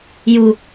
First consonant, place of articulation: palatal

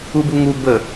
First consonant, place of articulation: labial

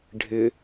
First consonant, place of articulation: retroflex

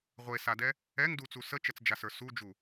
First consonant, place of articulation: uvular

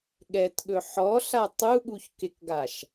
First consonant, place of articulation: velar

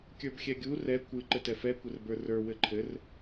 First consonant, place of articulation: velar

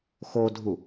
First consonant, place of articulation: velar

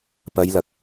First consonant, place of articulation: labial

